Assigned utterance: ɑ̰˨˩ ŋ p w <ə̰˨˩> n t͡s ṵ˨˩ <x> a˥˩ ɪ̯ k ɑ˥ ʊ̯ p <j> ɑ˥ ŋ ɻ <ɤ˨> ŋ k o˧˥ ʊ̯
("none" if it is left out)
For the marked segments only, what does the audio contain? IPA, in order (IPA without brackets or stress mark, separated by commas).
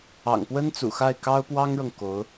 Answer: ə˥, x, w, ɤ˨